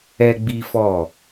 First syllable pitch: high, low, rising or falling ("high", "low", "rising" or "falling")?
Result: high